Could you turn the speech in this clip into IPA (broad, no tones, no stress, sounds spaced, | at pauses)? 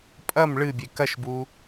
pʼ ɐ m ɭ ɨ bʲ e k ɐ ʃ b u